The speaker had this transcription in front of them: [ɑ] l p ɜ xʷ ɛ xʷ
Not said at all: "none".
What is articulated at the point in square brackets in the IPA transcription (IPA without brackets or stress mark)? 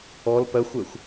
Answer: ɔ